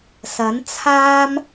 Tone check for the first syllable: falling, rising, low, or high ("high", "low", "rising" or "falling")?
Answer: rising